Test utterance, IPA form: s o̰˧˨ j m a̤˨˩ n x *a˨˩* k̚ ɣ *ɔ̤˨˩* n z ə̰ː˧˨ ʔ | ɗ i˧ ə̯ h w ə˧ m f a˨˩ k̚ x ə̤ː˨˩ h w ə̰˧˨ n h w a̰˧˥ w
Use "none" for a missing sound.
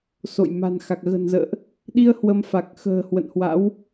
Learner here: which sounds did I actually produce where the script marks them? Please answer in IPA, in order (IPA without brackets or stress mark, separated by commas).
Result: a˨˩, ə̤˨˩